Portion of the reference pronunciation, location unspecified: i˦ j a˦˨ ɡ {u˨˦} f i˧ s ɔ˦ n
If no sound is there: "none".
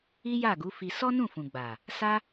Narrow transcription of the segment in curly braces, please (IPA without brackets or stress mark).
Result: u˨˦